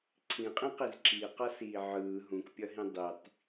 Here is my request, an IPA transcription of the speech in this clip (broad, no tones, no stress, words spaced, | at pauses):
ǀʰĩqʼĩqiz ǁiqʌsiː ʕɯː ɦũkpʲʌɦĩ dˤitˤ